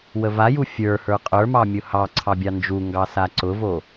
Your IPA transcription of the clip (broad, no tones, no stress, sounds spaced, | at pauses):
w ə v a j u fʲ ə˞ h ə˞ qʼ ə˞ m ɑ mʲ ʊ h ɑ ǀʰ ɑ bʲ ɑ n d͡ʒ u ŋ ɡ ɑ s a ǀ ʊ v o